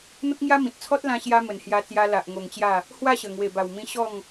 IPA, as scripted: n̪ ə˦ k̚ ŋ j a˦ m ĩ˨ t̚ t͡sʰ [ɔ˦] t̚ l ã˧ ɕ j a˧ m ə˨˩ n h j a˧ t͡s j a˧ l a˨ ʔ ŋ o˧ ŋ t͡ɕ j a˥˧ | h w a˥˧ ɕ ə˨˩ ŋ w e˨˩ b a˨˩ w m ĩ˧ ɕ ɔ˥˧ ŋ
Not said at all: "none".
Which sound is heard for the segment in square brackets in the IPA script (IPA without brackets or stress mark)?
ɔ˦